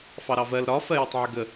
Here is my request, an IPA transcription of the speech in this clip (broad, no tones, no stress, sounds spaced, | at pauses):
f ɑ ɾ ɑ v ɜ l ɾ ɒ f ɜ j ɪ tˤ ʕ ɪ ɡ ə